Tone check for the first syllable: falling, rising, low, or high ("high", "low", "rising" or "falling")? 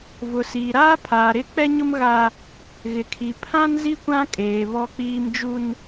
low